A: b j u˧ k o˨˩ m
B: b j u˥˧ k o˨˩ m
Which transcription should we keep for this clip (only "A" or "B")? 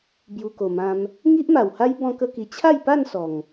A